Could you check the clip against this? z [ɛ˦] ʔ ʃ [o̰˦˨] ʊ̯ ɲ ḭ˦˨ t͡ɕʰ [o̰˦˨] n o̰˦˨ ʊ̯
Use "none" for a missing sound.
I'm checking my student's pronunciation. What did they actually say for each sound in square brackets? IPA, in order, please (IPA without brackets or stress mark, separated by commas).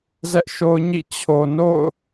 ɛ˦, o˦, o˨